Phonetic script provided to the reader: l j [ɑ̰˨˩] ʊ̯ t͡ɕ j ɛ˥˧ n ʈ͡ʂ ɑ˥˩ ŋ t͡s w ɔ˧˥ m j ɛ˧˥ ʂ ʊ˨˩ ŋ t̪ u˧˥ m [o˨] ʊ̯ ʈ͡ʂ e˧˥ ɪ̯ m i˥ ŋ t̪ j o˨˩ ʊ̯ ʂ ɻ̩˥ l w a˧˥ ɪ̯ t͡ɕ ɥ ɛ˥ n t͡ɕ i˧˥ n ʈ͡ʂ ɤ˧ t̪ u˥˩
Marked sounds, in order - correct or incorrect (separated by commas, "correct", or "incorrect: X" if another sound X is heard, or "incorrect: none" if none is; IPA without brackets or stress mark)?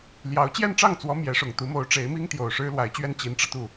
incorrect: ɑ˧˥, incorrect: o˧˥